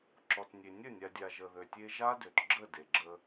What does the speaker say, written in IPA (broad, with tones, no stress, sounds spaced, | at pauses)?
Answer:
ǁ ɔ˨ t nʲ e˨ nʲ ə˦˨ nʲ a˨ dʲ a˨ ʒ ə˨ ð ø˨ tʲ e˦ ʒ a˦ d ø˨ t ɡ͡ǁ ə˦˨ d e˨ ɡ͡ǁ ə˦